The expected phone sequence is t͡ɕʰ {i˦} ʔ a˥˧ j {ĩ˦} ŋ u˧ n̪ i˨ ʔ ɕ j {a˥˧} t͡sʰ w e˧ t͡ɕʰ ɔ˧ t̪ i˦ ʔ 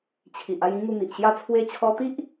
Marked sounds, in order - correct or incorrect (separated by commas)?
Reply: incorrect, correct, correct